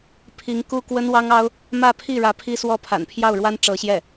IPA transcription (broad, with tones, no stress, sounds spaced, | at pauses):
pʰ i˧˥ ŋ k u˥ k w ə˥ n w ɑ˥ ŋ ɑ˥ ʊ̯ | m ä˥˧ pʰ i˥˩ ɻ ä˧˥ pʰ i˥ s w ɔ˥˩ pʰ a̰˨˩ n pʰ j ɑ˥˩ ʊ̯ ɻ w a˥ n ʈ͡ʂ ɤ˧˥ ɕ j ɛ˥˩